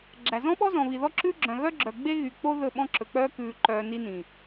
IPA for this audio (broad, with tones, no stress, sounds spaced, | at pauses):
ɡ͡ǁ æ˨ z ɔ̃˦ ɓ ɔ˦ z ɔ̃˨ β i˨ ð ɔ˦ ǁ ʉː˦ ɡ͡ǁ œ̃˨ ɣ œ˦ ɡ͡ǁ œ˨ ɡ͡b e˦ ɣ y˨ k͡p o˦ ð ɵ˦˨ ɓ ɔ̃˦ ǁ ɵ˨ k͡p œː˦ k ʉː˨ ǃ œː˨ n i˦ n ĩ˨